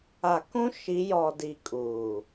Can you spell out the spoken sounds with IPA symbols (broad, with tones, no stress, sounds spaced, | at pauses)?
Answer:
a˨ k ũ˦ ʃ i˨˦ j ɔ˨ d i˨ kʼ uː˨